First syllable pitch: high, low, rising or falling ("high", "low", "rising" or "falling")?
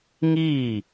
falling